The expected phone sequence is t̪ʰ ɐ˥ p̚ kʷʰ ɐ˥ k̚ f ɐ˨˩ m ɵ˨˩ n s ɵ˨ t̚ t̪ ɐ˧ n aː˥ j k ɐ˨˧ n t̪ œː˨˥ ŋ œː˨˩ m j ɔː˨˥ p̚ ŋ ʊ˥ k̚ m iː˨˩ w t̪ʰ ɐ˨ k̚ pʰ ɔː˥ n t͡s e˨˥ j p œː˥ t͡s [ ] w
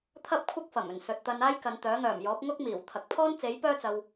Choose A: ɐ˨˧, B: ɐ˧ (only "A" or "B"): B